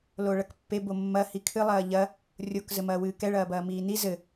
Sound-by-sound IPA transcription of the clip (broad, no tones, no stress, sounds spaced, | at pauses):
l o ɭ ɐ k pː e b o mː ɐ h i kʰ ɨ lˠ ɐː ʎ ɐ | rʲ o k z ɘ m ɐː w ɨː k ɛ ɭ ɐː b ɐː m iː n i z ɘ